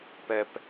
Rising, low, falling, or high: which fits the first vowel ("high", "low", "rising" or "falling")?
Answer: low